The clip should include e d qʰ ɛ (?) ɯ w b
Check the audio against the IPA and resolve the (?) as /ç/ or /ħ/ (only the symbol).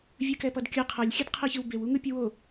ç